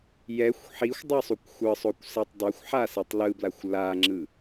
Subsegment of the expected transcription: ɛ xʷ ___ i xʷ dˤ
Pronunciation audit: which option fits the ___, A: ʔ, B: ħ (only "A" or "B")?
B